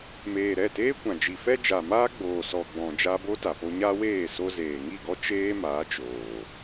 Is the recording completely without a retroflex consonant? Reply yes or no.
yes